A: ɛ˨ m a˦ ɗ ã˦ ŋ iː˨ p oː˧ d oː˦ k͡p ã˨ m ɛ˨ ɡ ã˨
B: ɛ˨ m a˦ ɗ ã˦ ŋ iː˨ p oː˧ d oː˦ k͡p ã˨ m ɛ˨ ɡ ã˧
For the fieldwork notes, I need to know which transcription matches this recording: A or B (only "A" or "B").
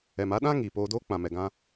B